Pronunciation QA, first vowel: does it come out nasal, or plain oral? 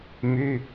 oral